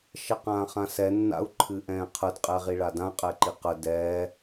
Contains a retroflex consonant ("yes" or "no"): yes